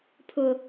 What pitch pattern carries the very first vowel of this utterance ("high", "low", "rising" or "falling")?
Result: low